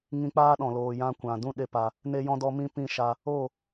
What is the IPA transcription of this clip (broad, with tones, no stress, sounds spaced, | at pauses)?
ŋ ĩ˧ k͡p aː˦ ɗ ɔ̃˨ l oː˨ j ã˧ kʷ ã˨ d ũ˦˨ ɗ e˦ p a˧ | n e˧ j ɔ̃˧ d ɔ˧ m ĩ˧ p ĩ˦˨ ʃ a˧ | o˦˨